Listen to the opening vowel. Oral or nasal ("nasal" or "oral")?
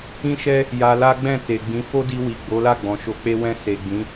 nasal